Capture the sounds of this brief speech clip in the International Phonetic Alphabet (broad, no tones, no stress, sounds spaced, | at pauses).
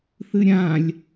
θ ɨ ɾʲ ã lʲ